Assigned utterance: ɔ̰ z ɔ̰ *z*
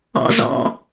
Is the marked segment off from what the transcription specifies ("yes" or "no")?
yes